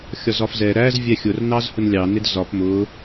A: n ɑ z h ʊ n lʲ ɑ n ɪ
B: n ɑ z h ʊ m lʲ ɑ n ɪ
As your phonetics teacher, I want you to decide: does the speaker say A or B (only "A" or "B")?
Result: A